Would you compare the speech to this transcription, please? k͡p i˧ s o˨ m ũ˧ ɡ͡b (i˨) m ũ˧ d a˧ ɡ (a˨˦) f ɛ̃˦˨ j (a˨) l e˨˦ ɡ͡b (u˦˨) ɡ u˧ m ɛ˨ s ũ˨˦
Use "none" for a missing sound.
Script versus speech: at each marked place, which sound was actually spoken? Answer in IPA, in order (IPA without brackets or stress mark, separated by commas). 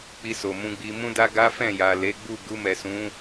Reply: i˧, a˦, a˨, u˦˨